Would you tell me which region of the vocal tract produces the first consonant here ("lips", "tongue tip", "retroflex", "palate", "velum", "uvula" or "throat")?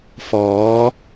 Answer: lips